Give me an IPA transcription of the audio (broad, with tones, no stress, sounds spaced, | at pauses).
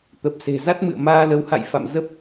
t̪ ə˨˩ p̚ s e̤˨˩ z a˦˥ t̚ m ɨ̰˧˨ ə̯ m aː˧ l ə˨˦ w h a̰˧˨ j f a̰˧˨ m z ə˦˥ p̚